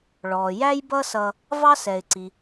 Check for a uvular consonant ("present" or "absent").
absent